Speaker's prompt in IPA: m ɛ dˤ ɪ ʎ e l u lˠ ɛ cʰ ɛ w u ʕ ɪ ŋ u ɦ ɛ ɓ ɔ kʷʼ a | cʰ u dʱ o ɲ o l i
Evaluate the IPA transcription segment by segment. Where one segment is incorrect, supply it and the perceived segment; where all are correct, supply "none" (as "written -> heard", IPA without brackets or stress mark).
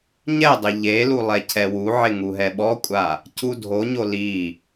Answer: m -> ɲ